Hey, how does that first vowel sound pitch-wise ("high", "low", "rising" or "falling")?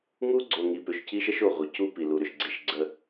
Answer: high